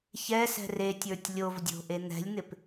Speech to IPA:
çɛsɛ̤ retʲə˞tʲ lʲovdʲo̤ʔe n̪ɛ̤lʲn̪ɪp

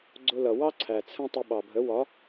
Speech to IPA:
ɡ͡ǀʊ˧lʌ˨wɑ˦ǀʰæ˨ t͡sʰə̃˧ tˤʊ˧ɓɑ˨bʱə˨˦ wɒ˨˦

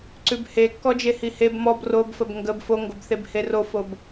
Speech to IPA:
ǀʉbhekːɔd͡ʒe hiheb mɔb robfəb ŋɡəb foŋɡobθeb herofob

